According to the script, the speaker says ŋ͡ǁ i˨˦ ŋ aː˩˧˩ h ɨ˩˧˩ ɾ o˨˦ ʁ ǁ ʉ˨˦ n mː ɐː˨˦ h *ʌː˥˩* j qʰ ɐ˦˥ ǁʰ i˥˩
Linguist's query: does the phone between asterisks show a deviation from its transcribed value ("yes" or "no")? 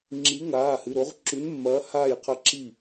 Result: yes